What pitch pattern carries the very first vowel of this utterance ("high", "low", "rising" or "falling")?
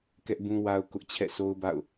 high